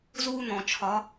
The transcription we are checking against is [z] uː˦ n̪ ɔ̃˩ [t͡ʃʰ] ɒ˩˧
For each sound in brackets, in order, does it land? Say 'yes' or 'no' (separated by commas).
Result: yes, yes